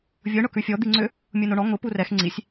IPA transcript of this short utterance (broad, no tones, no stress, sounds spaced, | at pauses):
vʲ ʊ ɳ ʊ k ʉ fʲ ɔ d̪ i ŋ͡ǀ ʏ | mʲ u n o ɳ ɔ ŋ ʊ p u r ɛ x ŋ͡ǀ i sʲ